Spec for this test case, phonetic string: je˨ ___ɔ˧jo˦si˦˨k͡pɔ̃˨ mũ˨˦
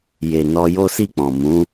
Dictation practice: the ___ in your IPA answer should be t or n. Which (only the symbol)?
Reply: n